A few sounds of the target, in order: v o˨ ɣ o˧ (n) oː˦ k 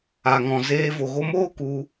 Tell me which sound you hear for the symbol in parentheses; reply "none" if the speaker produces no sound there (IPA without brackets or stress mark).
m